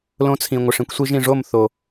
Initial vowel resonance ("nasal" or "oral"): nasal